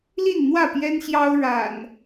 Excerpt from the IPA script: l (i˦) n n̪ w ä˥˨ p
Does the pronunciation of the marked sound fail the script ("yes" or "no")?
yes